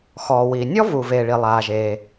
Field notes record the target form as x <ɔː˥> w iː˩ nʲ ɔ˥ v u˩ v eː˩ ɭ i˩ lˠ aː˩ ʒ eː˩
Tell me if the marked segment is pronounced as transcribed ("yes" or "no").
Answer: no